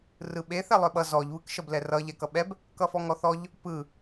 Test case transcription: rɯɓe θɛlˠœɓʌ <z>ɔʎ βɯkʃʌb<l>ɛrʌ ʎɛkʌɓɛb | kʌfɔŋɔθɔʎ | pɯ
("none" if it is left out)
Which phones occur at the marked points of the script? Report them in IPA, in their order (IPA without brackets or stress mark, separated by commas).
z, l